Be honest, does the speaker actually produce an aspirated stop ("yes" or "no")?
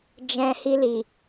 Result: no